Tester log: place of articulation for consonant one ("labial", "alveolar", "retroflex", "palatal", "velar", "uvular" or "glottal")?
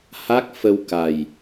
glottal